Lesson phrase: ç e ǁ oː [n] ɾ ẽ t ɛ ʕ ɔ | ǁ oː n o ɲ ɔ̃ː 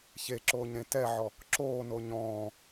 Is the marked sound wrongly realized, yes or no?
yes